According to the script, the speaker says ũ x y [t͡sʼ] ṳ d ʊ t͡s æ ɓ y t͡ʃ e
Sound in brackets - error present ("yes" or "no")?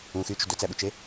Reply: yes